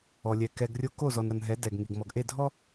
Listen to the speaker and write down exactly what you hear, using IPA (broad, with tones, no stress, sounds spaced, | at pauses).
ɔ˨ lʲ ɛ˨ k ɛ˨ ɡ rʲ o˦ k o˦˨ z ɔ˨ n ɾ ʌ˨ n ɦ ɛ˨˦ d ɛ˨ ɡ ŋ i˨ ɡ m ɔ˨ ɡ ʔ e˦˨ dʱ ɔ˦